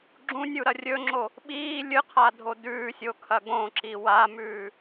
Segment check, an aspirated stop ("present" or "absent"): present